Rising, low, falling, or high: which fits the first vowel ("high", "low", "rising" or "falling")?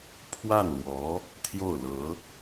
falling